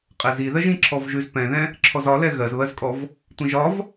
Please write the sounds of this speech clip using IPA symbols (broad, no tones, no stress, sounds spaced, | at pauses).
qʼ ɛ z i ð ɜ ʒ ĩ ǁʰ ɔ v ʒ ʉ z p ɛ̃ ð ɛ̃ | ǁʰ ɔ z ɒ l ɛ ɣ ɜ z β ɜ z kʼ ɔ v | tʷ ĩ ʒ ɒ v